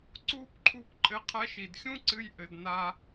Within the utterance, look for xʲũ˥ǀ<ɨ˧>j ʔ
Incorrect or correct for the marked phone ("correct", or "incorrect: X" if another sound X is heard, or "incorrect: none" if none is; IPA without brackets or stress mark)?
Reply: correct